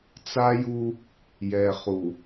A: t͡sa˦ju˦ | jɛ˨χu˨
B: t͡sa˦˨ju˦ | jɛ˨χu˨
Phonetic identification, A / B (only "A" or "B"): A